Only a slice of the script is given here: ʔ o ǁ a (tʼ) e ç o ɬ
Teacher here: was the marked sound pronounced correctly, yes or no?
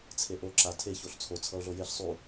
no